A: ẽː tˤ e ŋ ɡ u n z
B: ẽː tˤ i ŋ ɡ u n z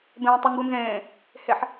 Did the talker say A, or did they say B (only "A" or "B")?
B